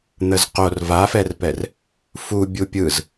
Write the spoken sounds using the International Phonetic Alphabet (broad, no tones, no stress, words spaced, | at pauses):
n̪əzqor vafɛrpɛr | fu bʲupʲɯz